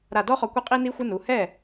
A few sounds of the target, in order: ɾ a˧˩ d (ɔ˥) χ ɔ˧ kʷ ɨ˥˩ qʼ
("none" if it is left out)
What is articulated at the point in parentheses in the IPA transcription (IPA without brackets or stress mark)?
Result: ɔ˥